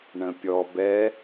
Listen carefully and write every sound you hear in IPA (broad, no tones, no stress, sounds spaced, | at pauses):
ɳ ə̃ pʲ ɔ b ɛ